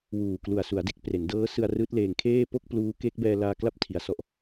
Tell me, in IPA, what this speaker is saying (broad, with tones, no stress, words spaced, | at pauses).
wuː˨˩klu˨˩a̯ su˩˦a̯de˦˥k̚pre˩˦ndɤː˦˥ sɯ˧a̯ rɯː˦˥t̚leː˧ŋkʰeː˥˩ po˥˩k̚ pluː˦˥ke˦˥k̚ bɛː˧laː˧kla˦˥p̚ tʰi˧a̯sɔ˥˩ʔ